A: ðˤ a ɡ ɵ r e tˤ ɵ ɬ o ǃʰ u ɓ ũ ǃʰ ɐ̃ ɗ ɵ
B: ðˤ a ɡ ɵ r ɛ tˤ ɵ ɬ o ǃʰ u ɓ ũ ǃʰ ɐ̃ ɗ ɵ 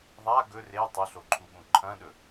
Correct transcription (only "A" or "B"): A